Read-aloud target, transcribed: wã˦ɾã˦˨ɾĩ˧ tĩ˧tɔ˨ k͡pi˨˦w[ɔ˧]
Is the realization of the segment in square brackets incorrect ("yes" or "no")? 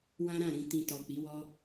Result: yes